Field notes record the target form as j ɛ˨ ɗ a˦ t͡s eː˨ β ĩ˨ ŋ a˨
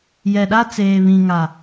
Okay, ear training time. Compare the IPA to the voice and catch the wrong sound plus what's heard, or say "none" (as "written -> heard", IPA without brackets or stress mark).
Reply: none